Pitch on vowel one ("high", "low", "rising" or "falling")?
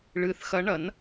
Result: rising